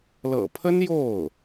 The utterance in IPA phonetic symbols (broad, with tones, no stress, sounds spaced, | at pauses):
l ɤ̰˨˩ pʰ ə˥ n j o˥˩ ʊ̯